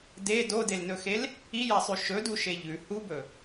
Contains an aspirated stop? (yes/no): no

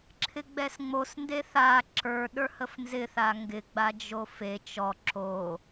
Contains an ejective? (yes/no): no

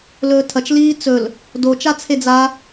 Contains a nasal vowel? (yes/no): no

